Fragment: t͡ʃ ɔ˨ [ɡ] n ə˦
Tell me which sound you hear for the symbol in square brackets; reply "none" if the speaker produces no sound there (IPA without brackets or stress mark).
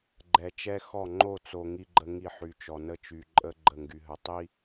none